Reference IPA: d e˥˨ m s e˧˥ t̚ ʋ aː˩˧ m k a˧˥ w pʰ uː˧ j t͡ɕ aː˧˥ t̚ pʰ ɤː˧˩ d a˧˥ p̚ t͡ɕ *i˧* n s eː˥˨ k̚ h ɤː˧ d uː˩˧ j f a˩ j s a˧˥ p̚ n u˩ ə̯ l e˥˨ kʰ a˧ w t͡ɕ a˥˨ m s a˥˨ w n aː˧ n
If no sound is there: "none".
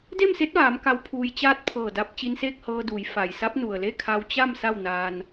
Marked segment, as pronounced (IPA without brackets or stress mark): i˧